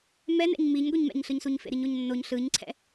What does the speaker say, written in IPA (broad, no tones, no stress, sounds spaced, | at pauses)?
m ɛ n ɛ̰ ɲ m i ɲ ɡʷ i ɲ m ɛ̰ ɲ ɬ ɯ ɲ s u ɲ f ḛ ɾ i ɲ o ɲ nː o ɲ ɬ ɯ ɲ ǀʰ ɛ̰